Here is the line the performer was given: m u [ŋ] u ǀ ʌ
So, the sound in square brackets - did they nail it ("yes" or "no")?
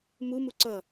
no